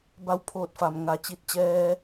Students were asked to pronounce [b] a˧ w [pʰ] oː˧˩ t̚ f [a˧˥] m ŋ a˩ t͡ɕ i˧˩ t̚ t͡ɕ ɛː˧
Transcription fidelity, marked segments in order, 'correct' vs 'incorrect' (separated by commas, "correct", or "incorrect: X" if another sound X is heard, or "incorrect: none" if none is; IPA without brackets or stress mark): correct, correct, incorrect: a˩